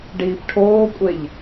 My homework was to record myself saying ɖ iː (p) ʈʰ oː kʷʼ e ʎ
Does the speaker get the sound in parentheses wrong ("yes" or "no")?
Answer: no